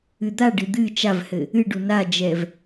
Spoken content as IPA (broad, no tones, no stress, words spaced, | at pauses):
ɨd̪aɖɨ d̪ɨ t͡ʃavhɘ | ɨɖu nad͡ʒɛv